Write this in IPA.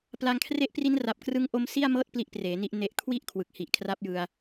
pla˧ŋkʰre˦˥ʔpri˦˥nra˨˩p̚ krɯ˦˥ŋʔo˦˥m si˥˩a̯mɤː˥˩t̚ pli˥˩ʔpreː˩˦ni˦˥ʔ ne˨˩ʔkʰwi˦˥ʔ kʰwɯ˨˩k̚hi˨˩ʔkʰra˦˥p̚ jɯ˧a̯

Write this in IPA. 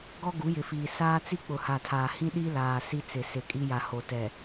ɡɔ˦ɡu˨˦jɪ˨fiː˨ saː˦t͡si˦ k͡pʊ˨ha˨tʰaː˨hĩ˦ ɗi˦ laː˨ si˦t͡sɪ˨sɪ˨kʼi˦ ja˨ ho˨ tɛ˨

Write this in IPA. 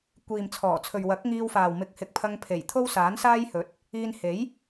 kʷiː˨mt͡sʰɔː˨˩ t͡sʰɵ˨ɥwɐ˨˥k̚ŋiː˧wfaː˨w mɪ˨˥k̚hɪ˨k̚pʰɐ˧ŋpʰe˨˩j t̪ʰo˥wsaː˨˥nsaː˥jhɵ˨˥t̚ | iː˧nhe˨˥j

